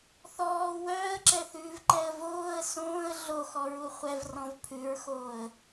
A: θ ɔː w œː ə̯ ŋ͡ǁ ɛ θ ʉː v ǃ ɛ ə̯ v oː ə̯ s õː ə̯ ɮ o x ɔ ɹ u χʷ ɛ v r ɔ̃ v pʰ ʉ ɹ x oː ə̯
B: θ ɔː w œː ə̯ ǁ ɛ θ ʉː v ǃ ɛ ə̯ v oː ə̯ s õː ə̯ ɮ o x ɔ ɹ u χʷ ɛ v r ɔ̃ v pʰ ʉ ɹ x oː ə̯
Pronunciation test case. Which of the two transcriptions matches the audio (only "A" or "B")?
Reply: B